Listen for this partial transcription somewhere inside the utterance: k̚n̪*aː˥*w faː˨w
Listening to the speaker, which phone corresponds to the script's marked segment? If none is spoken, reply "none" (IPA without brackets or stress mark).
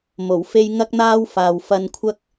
aː˥